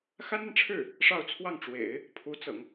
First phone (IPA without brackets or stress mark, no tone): x